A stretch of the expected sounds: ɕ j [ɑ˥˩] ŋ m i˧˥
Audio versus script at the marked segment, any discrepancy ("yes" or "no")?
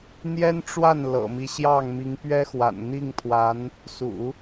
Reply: no